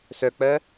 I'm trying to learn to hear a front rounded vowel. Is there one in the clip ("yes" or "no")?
yes